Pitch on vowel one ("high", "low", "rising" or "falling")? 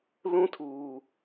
high